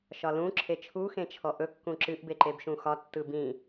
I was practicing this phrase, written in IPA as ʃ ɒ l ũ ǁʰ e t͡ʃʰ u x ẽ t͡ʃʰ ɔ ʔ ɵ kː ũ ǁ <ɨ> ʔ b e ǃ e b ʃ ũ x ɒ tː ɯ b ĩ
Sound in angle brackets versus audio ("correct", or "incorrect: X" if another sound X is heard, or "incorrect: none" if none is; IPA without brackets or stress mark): correct